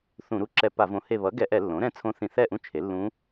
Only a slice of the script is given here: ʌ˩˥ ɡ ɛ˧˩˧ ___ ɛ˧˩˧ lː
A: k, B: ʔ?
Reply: B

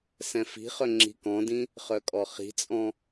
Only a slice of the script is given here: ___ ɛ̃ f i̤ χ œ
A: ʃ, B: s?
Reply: B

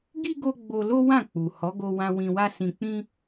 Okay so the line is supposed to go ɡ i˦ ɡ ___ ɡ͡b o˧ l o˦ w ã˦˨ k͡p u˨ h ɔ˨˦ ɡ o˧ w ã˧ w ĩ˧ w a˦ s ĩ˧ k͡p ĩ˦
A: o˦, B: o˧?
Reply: B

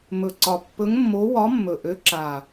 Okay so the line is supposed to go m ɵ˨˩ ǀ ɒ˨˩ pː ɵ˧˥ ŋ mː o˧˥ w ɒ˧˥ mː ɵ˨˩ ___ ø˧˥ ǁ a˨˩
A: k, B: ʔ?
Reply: B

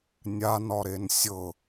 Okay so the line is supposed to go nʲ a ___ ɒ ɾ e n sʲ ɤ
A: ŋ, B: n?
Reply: B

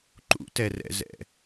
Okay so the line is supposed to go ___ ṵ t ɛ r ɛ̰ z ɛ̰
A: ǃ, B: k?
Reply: A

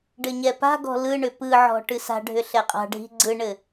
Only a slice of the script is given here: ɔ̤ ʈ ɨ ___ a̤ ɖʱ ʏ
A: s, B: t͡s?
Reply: A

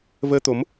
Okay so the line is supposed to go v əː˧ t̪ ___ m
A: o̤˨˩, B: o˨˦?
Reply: B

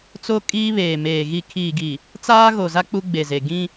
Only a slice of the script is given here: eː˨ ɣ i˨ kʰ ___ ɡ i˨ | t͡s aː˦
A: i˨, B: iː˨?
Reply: B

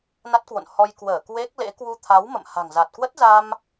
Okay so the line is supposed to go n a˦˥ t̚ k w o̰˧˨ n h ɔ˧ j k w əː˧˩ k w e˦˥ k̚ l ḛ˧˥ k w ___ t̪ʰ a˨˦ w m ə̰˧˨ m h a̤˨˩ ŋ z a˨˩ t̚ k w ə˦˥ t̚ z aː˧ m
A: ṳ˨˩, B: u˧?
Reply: B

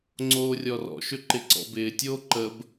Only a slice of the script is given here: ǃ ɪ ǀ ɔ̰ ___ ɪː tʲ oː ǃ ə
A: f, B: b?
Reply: B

